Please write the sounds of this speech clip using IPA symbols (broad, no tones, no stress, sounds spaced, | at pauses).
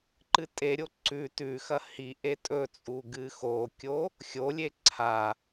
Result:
ǃ ɨ tʼ e ɾʲ o ǀ ʉ t ʉ x ɐ h i ʔ e tʼ ɵ t͡sʼ u ɡ ɨ x o kʲ o | xʲ o lʲ e ǀʰ a